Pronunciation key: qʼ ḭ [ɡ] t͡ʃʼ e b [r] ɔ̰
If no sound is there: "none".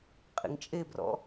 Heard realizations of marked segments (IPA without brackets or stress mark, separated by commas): ŋ, r